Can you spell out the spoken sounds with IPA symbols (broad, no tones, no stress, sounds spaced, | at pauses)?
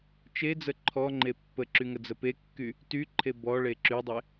t͡ʃ e d͡z ə ǃʰ ɔ ŋ͡ǃ e pː ə ǁ y ŋ ə d͡z ə p e kː y | t y ǃʰ e b ɔ ɭ e ǁ y dˤ e